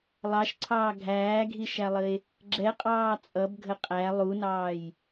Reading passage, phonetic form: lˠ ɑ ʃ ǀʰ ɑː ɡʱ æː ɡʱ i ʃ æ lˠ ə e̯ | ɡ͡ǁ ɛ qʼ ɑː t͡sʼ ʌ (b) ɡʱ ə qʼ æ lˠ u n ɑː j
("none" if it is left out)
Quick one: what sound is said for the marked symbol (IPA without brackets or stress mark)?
b